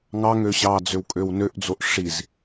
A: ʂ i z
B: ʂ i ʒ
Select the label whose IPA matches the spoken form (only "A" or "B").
A